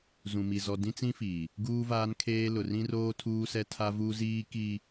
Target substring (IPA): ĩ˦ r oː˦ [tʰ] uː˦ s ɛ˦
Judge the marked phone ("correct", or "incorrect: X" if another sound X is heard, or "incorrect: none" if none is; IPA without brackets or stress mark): correct